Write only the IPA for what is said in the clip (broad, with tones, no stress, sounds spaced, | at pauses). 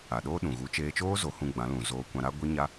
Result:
a˨ ɗ oː˦ ɗ ũ˨ ɣ u˨˦ t͡ʃ eː˧ t͡ʃ oː˦ z o˨˦ h ũ˧ ɡ͡b ã˨˦ l ũ˨ z oː˧ kʷ ã˧ ɾ a˦ ɡʷ i˦ ɲ a˦